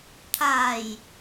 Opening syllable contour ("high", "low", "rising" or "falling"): low